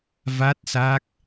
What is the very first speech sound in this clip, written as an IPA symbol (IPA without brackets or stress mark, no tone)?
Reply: v